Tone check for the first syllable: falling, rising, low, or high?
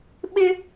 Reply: high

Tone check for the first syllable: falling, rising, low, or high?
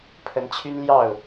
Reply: rising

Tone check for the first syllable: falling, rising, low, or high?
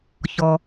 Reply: low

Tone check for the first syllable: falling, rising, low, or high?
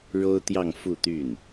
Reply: high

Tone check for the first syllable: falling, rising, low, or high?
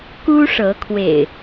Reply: high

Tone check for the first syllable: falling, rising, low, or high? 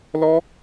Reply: high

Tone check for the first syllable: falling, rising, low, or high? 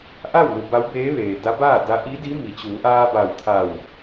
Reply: falling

